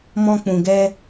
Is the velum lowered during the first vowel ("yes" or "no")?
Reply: yes